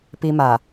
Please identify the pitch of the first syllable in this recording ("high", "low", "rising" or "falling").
high